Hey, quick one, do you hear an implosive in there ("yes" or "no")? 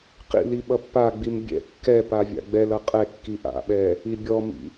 yes